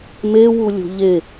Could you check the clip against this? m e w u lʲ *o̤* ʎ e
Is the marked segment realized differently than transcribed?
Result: no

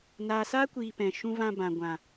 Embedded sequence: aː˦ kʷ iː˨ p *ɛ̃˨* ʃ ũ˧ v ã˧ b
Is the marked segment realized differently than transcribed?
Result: no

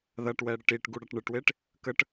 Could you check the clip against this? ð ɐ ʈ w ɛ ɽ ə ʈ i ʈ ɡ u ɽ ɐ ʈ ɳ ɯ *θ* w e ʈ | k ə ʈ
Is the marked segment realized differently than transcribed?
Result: yes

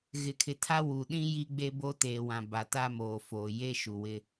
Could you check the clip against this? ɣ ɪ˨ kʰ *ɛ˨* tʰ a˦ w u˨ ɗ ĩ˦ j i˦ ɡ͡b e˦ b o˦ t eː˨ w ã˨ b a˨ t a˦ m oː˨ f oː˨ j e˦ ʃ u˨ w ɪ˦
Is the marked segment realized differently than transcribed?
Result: yes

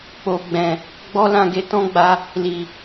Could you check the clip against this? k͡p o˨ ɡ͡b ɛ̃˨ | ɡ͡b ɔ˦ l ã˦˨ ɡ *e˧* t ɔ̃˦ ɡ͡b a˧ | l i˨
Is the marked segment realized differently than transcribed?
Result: no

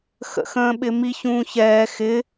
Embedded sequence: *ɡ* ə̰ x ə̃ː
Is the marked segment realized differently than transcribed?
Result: yes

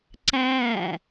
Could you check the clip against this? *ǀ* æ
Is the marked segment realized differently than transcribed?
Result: no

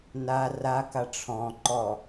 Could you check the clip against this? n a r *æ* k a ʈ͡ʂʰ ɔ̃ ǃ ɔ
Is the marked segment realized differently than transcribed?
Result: yes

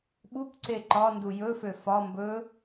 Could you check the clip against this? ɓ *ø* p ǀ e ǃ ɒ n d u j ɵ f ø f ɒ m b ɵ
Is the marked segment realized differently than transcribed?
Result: yes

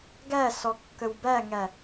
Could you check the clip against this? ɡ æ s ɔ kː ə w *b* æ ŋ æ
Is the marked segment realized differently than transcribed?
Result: no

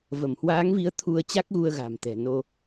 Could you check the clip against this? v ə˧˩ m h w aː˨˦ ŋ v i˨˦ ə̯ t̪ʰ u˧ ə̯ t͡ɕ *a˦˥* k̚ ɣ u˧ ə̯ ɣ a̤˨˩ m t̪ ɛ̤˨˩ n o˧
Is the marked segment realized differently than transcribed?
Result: no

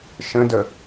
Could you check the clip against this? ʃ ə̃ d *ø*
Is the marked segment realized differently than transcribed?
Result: yes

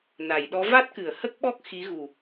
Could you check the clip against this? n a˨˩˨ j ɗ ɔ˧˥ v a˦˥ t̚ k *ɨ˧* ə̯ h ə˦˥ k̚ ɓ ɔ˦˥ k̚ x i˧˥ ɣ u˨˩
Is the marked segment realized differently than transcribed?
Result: yes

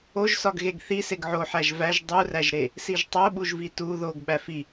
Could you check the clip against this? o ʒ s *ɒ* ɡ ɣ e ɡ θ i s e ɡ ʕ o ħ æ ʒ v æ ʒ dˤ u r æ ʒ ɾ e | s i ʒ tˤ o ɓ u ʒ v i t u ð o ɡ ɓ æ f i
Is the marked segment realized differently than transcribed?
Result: no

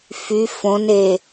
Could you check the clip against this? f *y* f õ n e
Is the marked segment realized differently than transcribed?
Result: no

